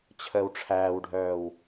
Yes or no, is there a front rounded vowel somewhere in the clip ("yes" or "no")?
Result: yes